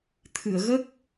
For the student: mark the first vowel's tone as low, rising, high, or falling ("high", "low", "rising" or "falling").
low